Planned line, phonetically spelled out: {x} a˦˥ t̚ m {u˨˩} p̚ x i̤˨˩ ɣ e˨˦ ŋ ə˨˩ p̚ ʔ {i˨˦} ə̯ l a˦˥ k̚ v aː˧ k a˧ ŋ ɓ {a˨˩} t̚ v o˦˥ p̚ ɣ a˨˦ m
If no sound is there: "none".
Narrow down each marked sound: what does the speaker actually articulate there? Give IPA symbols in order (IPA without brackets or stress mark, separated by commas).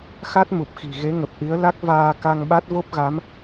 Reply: x, u˨˩, i˨˦, a˦˥